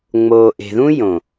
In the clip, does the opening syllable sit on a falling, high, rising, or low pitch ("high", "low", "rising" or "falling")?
low